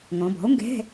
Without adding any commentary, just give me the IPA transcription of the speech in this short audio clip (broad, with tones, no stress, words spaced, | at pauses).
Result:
ŋɔ̃˩˧bɔ̤˩˥o̯ŋɡɛ̤˧˥˧